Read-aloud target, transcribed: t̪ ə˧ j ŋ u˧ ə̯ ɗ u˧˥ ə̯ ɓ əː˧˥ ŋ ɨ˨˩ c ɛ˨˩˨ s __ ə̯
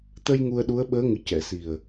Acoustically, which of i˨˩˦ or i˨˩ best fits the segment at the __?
i˨˩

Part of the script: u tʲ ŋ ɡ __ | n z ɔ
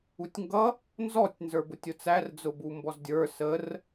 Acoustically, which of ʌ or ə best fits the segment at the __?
ʌ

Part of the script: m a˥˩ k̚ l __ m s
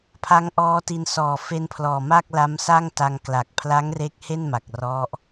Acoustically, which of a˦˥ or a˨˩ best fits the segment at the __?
a˦˥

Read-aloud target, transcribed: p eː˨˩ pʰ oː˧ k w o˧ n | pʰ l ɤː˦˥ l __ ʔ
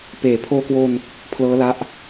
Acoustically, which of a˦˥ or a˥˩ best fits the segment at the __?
a˦˥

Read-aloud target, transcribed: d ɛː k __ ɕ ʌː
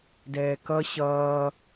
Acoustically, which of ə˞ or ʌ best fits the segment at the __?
ʌ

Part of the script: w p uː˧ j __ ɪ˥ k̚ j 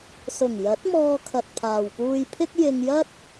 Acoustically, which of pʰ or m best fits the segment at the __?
pʰ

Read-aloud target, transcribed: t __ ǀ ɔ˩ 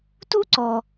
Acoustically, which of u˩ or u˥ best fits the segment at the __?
u˥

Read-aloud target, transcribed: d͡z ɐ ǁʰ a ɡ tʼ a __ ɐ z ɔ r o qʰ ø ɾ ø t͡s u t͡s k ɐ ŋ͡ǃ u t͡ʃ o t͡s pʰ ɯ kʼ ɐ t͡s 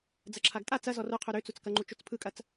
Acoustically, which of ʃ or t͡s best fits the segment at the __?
t͡s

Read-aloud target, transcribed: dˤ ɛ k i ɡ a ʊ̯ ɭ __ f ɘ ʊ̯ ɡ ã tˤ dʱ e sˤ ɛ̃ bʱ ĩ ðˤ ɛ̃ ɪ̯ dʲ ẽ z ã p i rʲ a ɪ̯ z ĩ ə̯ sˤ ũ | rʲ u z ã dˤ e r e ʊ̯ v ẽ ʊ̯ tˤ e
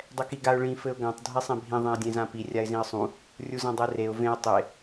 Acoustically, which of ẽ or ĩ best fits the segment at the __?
ĩ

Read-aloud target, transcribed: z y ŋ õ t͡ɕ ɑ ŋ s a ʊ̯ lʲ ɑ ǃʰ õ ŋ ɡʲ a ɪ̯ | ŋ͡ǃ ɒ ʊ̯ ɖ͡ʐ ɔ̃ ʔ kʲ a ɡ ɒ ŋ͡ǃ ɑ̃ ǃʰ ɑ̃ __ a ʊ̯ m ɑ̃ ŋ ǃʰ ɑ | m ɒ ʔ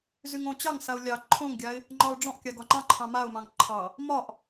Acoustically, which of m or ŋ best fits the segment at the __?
m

